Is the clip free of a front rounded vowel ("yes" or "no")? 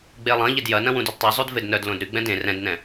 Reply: no